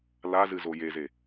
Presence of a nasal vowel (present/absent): absent